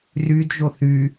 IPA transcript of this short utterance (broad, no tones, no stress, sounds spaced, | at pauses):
r y d ʒ o θ y